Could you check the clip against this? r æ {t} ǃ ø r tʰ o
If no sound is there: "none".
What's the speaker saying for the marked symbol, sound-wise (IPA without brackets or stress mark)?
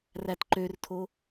t